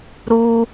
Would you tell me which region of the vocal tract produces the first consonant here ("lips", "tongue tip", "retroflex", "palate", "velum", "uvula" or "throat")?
tongue tip